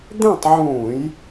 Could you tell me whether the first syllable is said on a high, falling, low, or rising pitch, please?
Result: falling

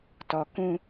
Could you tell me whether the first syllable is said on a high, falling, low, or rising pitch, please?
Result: low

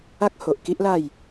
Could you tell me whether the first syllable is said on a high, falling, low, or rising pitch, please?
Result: high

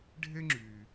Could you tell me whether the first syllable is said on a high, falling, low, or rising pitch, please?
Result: high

